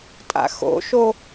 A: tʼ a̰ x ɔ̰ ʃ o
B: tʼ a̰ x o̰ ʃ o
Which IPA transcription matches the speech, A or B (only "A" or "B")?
B